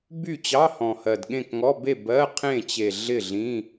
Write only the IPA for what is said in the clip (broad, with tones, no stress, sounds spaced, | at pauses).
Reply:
b y˥˨ t͡ɕ ɑ˧˥˧ h ɔ̃˨˩ h ɜ˨˩ d ɠ ẽ˥˨ k ŋ ɔ˧˥˧ b e˥˨ b ɜ˧˥˧ qʰ ẽ˥˨ t͡ɕ e˨˩ ɮ ɪ˥˨ ɮ ĩ˧˥˧